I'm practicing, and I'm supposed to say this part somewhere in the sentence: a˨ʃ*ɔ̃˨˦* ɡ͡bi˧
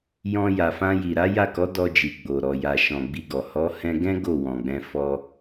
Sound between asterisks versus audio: incorrect: ɔ̃˨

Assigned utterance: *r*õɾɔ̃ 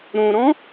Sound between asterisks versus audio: incorrect: ɾ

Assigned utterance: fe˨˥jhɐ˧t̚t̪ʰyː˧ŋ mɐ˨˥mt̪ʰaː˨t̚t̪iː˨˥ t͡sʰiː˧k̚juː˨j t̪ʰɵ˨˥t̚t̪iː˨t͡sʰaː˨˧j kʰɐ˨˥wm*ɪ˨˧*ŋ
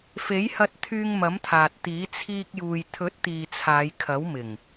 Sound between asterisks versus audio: incorrect: ɪ˨˩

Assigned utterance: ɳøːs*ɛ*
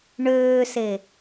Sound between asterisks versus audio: incorrect: e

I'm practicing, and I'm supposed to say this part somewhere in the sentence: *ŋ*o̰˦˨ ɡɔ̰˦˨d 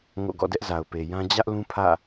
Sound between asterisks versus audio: correct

